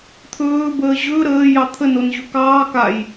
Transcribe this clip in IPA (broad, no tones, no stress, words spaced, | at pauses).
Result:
t̪ʰɵːbəː ʑɵ ɾəːjɑ t̪ʰənonʑɵ kɑː kaj